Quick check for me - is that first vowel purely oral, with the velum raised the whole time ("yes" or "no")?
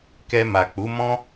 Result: yes